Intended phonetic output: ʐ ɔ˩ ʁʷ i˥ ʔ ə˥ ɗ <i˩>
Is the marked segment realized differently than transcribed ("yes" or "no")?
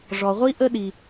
no